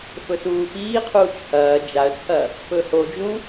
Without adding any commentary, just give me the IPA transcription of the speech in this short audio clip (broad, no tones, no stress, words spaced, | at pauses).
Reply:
fɵsuːpiːqʰuːt͡ʃ hɐː d͡ʒaə̯t͡sʰɐ | pɵhod͡ʒũ